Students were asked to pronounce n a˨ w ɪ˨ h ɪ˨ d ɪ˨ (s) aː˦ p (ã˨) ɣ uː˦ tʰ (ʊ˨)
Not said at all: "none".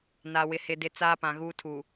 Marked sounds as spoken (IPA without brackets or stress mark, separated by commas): t͡s, ã˨, u˨